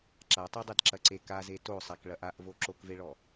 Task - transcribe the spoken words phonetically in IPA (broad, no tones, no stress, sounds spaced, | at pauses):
ǁ a tˤ e dˤ e d ǁ ɐ ǀ e k a z e t o sˤ ɛ k ɭ ɐ ʔ a ʔ v o ǁ o k v e ɭ ɔ